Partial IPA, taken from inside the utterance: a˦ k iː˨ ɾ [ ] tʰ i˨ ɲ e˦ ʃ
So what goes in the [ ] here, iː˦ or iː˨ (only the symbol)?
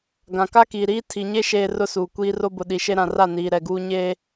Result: iː˦